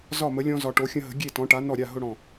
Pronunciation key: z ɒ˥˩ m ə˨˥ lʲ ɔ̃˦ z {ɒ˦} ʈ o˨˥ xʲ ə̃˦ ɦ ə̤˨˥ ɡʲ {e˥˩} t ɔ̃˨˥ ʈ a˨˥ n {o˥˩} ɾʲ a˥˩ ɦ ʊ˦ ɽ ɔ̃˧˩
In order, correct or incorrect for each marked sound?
incorrect, correct, incorrect

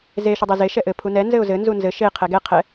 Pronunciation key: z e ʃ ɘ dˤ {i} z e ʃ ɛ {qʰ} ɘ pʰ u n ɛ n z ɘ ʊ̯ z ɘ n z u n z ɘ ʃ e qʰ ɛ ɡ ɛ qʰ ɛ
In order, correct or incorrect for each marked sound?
incorrect, incorrect

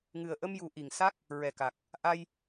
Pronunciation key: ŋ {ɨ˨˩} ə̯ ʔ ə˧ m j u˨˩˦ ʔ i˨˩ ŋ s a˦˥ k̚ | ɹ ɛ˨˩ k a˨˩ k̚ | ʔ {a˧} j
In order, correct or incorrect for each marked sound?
correct, correct

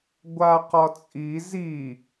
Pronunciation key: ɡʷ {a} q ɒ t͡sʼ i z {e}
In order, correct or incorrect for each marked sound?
correct, incorrect

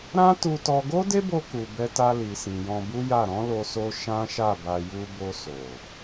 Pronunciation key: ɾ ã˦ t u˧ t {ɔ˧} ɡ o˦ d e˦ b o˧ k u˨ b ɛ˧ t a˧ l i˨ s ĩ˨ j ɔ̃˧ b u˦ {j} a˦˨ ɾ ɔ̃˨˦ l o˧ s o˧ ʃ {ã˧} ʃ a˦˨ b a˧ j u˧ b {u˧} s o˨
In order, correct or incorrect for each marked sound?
correct, correct, incorrect, incorrect

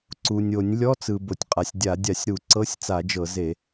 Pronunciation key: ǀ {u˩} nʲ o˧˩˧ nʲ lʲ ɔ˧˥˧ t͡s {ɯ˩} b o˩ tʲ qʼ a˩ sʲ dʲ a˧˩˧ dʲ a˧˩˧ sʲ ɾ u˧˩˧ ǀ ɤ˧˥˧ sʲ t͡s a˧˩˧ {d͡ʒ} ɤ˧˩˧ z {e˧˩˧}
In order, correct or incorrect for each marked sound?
correct, correct, correct, correct

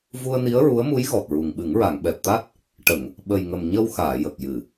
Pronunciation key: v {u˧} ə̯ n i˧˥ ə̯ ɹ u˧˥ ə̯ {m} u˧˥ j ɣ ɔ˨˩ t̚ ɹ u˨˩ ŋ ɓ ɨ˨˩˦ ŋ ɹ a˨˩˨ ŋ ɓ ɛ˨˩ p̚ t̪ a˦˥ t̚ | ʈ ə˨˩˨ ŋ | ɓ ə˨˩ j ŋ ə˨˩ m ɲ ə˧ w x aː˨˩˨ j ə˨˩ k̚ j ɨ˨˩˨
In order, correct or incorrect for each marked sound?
correct, correct

